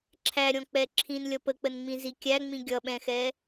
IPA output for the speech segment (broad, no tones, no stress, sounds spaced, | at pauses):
ǁʰ æ ɾʲ ɔ̃ k͡p ɛ ǁʰ ĩ n lʲ ʌ p ə k͡p ə n ŋ͡m ĩ z i kʲ æ ŋ͡m ĩ ɡʲ ʌ ɓ ɛ̃ x ɛ